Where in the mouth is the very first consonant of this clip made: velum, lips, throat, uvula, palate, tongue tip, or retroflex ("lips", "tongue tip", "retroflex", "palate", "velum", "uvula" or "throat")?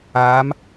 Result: lips